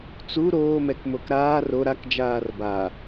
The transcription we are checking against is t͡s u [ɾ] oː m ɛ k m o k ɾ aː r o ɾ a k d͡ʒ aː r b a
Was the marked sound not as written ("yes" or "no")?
no